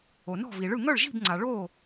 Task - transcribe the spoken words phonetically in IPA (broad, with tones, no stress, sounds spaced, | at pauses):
o˩ n ɔ̤˥˩ v i˩ ɭ ɯ˥˩ ŋ œ˥˩ ɭ ʒ i̤˥˩ b ŋ͡ǀ a˩ ɭ o˥˩